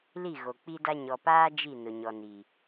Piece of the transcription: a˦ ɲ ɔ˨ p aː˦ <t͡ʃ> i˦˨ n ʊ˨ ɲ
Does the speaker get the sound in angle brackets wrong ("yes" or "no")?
yes